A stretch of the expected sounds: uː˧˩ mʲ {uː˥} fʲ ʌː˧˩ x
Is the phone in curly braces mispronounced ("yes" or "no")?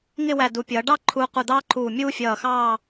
no